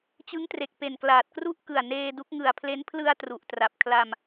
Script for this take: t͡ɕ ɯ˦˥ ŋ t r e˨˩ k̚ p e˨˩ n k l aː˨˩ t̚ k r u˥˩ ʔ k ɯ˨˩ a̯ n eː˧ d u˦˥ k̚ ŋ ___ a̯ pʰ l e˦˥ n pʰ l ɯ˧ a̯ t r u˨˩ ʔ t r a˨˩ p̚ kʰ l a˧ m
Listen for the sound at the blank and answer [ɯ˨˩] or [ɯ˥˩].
ɯ˨˩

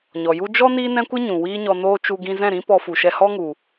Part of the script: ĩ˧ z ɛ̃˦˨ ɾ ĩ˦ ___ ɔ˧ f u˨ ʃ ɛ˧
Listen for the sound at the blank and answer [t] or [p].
p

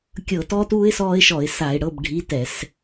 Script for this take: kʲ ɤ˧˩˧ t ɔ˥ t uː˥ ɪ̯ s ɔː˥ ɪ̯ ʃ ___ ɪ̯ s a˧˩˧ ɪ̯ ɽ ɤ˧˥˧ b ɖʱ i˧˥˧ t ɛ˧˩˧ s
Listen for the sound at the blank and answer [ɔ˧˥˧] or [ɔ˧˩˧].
ɔ˧˩˧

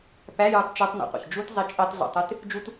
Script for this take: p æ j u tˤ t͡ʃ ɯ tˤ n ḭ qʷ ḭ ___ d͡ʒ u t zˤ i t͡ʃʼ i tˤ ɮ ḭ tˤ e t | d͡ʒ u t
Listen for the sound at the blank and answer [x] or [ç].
ç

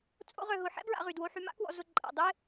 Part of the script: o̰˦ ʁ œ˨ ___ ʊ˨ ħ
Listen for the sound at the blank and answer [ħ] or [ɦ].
ɦ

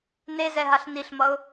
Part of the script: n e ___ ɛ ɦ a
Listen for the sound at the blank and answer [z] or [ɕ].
z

